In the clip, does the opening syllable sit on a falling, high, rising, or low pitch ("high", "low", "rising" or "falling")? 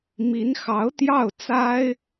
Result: rising